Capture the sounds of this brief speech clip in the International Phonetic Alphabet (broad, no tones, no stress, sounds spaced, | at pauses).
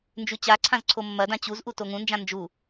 n d͡ʒ ʉ t͡ɕ a ǀʰ ã z ǀʰ o mː ɐ d ã t͡ɕ u z ʔ u t o ŋ ũ n d͡ʒ ã n d͡ʒ u